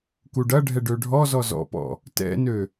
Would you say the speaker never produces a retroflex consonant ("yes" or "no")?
no